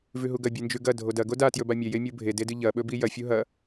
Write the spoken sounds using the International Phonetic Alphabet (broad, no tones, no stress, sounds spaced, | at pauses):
v ʉ ɦ u ɡ ɐ bʲ ɨ n d͡ʒ ʉ ɡ ɐ dʱ o d ɐ ɡ o d a t j ɵ b a mʲ e j e mʲ u bʱ e d e d ɨ ʎ ɐ ɓ ɵ b i j ɐ fʲ u ɦ ɐ